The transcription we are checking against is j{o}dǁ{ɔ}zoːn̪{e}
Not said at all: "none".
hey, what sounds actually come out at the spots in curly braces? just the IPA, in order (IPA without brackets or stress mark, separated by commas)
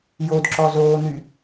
o, ɔ, y